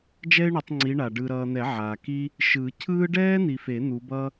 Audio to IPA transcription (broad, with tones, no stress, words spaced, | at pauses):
d͡ʒɛ˥ɪ̯ɳu˨˦tˤŋ͡ǀi˨˦ ɳa˨ ɖɯ˨ɾʌː˨n̪ɛ˨˩˦ ʕa˨ki˥ | ʃɯː˨˩˦cʰɯː˥ ɖɛː˥n̪i˨fe˨˩˦ n̪u˨˦bʌː˥